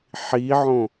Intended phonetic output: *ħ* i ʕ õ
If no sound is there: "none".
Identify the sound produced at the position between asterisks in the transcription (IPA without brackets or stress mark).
ħ